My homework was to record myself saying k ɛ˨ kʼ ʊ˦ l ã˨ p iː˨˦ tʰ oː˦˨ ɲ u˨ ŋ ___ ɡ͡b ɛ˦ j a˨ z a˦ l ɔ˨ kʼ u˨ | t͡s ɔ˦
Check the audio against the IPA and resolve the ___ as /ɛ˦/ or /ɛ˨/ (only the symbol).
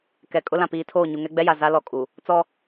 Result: ɛ˦